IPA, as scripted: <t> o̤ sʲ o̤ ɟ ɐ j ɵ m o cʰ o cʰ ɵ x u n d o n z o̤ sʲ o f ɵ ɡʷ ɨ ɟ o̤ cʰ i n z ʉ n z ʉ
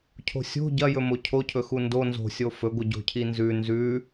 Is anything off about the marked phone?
yes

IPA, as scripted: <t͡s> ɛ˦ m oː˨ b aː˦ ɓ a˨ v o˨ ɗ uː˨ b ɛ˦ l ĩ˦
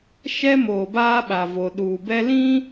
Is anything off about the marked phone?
yes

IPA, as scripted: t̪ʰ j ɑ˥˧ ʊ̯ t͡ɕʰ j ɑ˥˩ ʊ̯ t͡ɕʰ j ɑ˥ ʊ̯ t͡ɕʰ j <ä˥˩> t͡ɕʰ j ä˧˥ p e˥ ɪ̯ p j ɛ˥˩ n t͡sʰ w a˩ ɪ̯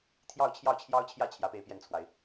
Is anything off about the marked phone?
no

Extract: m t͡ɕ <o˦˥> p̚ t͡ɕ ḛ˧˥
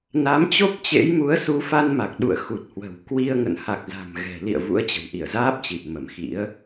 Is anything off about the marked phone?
no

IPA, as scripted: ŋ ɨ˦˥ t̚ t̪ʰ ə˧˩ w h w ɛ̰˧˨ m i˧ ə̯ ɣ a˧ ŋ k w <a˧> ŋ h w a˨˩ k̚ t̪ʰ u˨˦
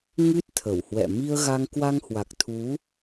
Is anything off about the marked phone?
no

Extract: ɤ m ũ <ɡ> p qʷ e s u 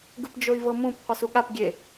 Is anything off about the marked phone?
yes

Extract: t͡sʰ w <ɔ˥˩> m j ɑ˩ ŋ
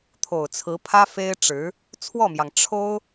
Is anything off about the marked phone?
no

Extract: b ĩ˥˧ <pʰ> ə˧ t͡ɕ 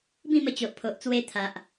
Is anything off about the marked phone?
yes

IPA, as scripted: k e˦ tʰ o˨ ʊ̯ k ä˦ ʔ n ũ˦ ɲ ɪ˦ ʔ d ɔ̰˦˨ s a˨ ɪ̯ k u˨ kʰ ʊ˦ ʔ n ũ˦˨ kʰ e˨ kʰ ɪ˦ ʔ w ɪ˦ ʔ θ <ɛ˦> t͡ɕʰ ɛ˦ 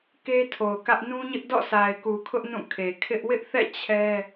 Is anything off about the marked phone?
yes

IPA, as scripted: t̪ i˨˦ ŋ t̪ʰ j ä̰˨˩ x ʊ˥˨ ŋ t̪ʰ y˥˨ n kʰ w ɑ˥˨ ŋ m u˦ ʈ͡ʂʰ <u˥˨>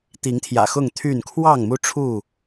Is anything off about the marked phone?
no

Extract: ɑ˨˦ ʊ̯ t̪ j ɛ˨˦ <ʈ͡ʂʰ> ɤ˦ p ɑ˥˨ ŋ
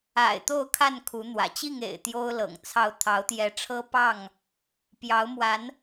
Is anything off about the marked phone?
no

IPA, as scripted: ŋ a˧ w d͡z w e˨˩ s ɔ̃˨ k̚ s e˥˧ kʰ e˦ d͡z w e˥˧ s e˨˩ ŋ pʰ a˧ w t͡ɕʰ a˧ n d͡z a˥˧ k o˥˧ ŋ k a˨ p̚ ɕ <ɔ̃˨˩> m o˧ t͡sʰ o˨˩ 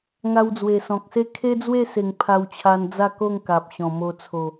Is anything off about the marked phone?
no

